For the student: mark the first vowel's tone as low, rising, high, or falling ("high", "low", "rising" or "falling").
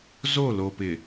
falling